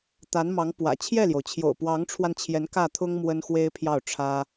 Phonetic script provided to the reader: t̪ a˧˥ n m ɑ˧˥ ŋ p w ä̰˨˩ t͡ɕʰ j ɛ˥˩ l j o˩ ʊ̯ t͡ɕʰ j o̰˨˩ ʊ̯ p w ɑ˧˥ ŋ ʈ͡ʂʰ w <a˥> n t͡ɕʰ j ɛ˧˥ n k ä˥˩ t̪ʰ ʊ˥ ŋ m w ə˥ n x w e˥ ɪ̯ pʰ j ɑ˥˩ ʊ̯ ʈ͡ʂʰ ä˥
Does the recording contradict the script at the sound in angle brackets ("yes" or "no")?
yes